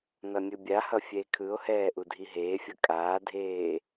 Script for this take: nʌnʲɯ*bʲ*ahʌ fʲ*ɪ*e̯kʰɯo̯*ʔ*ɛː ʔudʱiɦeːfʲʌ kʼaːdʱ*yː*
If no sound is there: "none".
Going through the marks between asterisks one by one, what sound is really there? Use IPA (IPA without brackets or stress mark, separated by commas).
bʲ, ɛ, h, eː